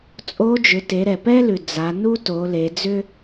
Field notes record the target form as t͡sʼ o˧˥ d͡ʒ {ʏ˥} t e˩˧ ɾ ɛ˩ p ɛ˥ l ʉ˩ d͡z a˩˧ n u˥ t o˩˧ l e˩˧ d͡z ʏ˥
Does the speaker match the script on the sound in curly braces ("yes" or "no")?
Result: no